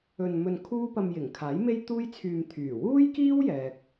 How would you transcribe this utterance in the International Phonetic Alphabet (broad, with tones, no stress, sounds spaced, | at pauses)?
ɵ˧ n m ɵ˧ n kʰ uː˥ p ɐ˧ m j ɪ˨˩ ŋ kʰ aː˨˥ j m e˥ j t̪ uː˥ j t͡sʰ yː˧ m t̪ʰ yː˨˩ w uː˥ j k iː˥ w j ɛː˨ k̚